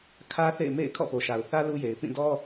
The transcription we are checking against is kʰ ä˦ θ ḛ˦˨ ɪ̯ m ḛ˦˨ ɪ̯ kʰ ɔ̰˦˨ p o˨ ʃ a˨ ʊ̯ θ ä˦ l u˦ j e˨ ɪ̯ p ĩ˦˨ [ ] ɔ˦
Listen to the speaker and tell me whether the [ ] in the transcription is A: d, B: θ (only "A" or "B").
A